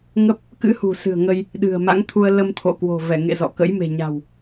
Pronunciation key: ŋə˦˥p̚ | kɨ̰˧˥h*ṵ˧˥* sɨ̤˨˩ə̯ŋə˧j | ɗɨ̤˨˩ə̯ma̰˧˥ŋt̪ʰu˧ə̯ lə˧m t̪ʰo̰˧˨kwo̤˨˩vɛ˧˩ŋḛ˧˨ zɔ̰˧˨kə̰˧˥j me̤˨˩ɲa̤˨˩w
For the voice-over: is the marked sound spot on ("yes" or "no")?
no